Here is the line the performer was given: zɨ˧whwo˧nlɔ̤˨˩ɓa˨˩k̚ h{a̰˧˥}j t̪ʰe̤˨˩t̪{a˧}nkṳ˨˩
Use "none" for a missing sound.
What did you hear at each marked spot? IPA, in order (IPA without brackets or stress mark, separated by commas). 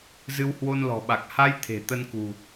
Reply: a˧, ə˧